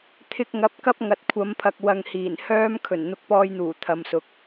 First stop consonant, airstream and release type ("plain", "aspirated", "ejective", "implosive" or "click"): aspirated